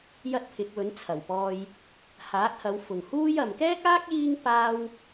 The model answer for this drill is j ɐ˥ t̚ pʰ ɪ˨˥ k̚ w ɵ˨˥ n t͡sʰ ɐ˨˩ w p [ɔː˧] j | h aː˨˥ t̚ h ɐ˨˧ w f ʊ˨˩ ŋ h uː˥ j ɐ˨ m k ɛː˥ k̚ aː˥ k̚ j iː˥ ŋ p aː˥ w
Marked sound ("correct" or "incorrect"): correct